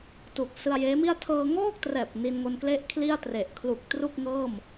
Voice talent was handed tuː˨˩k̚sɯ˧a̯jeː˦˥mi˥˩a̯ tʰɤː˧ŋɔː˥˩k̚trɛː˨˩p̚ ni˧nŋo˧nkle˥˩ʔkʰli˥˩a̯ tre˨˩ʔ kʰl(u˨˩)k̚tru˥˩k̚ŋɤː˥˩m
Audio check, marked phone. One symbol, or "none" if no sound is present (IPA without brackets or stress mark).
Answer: u˨˩